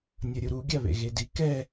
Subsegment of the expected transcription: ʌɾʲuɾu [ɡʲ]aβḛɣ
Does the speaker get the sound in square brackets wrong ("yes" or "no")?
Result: no